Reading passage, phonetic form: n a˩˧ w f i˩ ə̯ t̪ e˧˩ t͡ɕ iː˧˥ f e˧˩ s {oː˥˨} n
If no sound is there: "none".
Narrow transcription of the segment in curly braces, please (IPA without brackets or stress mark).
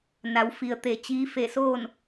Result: oː˥˨